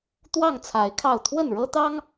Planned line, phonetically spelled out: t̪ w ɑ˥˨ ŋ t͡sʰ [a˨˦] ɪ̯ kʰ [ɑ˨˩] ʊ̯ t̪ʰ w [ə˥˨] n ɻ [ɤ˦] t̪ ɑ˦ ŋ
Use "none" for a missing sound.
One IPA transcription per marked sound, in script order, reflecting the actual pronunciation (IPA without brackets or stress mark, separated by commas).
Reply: a˨˦, ɑ˥˨, ə˥˨, ɤ˦